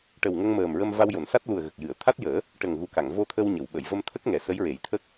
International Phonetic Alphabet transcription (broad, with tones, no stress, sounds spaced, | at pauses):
ʈ ə˨˩ w ŋ ə˧ ŋ m əː˨˩ m ɹ ə˧ m v a˧ w j o˨˩˨ n s a˦˥ t̚ l u˨˩ ə̯ ɣ ə˨˩ k̚ j ɨ˨˩˨ ə̯ t̪ʰ a˦˥ t̚ j əː˨˩˦ | ʈ ə˨˩ ŋ ɣ u˨˩ k a˨˩˨ ŋ v o˧ t̪ʰ ə˧ w ɲ ə˨˩˨ w ɓ ə˨˩˨ j v ə˧ m t̪ʰ ə˦˥ k̚ ŋ ɛ˨˩˦ s ə˧˥ j ɹ e˨˩˦ j t̪ʰ ə˦˥ k̚